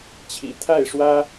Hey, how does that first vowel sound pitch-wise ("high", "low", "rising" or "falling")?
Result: low